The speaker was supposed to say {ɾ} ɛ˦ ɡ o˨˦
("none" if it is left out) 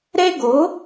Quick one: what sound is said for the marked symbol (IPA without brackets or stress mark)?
ɾ